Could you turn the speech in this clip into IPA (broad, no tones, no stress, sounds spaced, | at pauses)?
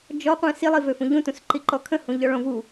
d͡ʒ ɔ qʷ ɛ̃ s i lˠ i v ø f ũ ʎ ũ t ũ s ǃ i ǃ ɔ kʰ ə̃ h ũ ʎ ɔ ɭ õ v u